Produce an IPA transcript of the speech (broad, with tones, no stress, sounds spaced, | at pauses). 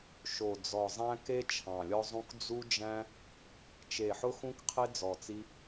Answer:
ʃ o˨˩ d͡z ɔ˨˩ zˤ æ̃˦ k e˦ t͡ʃʰ ɑ̃˨˩ lʲ ɔ˦ zˤ ũ˦ k d͡z u˦ d͡ʒ æ̃˦ | t͡ʃ e˨˩ ħ ʊ˦ x ũ˦ k qʰ e˦ d͡z ɔ˨˩ t͡s i˦